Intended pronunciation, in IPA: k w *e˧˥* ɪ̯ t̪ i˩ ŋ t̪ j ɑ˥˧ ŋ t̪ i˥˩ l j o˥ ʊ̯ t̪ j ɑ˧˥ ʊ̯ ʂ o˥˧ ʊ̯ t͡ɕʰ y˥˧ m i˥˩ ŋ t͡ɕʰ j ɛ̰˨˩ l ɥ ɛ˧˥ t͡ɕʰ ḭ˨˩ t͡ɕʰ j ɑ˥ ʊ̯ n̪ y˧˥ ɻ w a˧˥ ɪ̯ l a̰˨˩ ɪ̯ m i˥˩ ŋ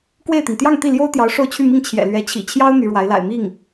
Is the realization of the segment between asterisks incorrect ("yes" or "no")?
yes